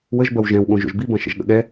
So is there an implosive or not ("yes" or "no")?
yes